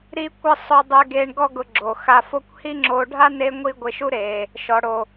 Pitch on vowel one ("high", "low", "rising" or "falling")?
high